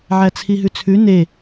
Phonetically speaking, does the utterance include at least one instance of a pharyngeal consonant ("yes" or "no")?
yes